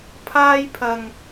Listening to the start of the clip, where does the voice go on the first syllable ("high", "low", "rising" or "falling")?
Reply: high